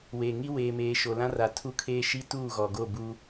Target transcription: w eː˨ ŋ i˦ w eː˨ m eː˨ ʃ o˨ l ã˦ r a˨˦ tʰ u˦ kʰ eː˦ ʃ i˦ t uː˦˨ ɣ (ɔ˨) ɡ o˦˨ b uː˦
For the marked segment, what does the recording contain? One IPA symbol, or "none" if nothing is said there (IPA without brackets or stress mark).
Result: ɔ˨